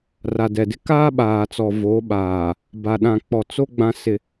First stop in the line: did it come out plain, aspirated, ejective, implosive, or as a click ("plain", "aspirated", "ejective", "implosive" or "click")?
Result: plain